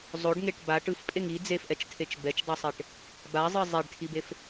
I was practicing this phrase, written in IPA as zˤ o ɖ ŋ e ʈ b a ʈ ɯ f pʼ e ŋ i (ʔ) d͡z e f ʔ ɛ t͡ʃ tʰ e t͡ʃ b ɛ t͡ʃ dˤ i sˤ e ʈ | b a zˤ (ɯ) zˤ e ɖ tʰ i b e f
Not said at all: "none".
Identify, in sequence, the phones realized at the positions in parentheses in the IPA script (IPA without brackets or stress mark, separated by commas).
none, ɯ